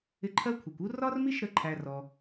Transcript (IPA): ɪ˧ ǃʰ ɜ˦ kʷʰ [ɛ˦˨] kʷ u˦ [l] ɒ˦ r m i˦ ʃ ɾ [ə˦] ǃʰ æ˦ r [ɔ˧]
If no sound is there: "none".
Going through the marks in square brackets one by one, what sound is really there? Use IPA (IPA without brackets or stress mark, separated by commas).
ɛ˨, r, ə˧, ɔ˧